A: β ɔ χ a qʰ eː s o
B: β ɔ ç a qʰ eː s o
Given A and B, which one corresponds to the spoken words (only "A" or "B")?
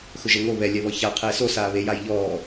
B